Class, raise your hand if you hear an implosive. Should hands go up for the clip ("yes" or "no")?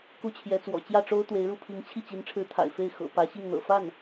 no